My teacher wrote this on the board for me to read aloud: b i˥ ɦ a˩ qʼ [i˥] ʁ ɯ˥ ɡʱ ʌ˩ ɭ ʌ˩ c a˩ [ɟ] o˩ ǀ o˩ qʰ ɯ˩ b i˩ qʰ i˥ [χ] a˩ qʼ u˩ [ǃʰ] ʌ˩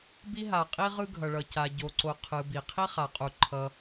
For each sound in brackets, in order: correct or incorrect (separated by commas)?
correct, correct, correct, correct